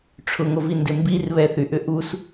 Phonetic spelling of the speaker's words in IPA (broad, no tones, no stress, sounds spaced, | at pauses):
ʈ͡ʂʰ ʊ ŋ o v i n d ɪ m b i r β ɛ θ y ʔ ʏ ʔ u s